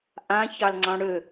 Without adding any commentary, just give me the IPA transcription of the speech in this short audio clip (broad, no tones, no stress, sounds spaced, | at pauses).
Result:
ʔ ã ç ɑ l ŋ͡ǀ ɑ̃ ɽ ø